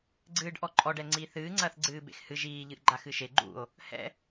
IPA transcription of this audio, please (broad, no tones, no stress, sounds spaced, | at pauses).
ɡ͡ǀ ɨː ɖ ʔ ɔ ǃʼ ɔ ɖ ɛ ŋ͡ǀ iː θ ɨː ŋ͡ǀ ɐː θ ɡ͡ǀ ɨː b ḛ x h ɨ ʒ iː ʎ ɨ ʔ ɡ͡ǃ a x ɨ ʃ e ɡ͡ǃ ṵ o̯ | h ɛ̰